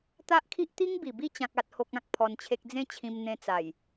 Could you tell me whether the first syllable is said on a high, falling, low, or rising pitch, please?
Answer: high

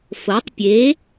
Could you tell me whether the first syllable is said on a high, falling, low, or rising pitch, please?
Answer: rising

